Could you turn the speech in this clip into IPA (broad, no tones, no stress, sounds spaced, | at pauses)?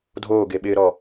dʱ oː ɡ e ɓ ɪː ɾ ɔ